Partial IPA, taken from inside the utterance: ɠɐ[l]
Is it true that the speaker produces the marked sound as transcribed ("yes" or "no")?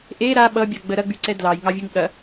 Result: no